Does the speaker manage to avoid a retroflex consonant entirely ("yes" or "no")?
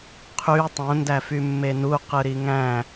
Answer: yes